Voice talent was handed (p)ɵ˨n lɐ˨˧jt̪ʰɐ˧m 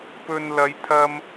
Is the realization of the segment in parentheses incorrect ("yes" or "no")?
no